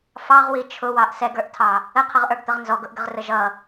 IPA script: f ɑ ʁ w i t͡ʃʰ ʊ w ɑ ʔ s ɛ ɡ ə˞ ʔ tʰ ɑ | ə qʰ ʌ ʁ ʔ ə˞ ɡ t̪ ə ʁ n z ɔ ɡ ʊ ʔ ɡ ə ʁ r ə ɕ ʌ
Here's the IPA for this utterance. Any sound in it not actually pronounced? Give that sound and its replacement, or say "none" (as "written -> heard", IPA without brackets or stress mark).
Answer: ɕ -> ʒ